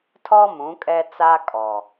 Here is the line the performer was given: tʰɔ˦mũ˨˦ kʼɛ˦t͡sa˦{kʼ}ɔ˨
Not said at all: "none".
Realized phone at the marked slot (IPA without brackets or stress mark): kʼ